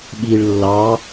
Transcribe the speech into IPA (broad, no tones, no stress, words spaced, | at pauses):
ɓiɭ lːɑ